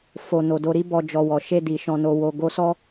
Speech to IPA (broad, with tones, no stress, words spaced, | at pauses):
fo˨ no˨do˧ɾi˦bɔ˧ d͡ʒɔ˨ wɔ˨ʃe˧di˨ ʃɔ̃˨no˨ wo˨ ɡo˧ sɔ˧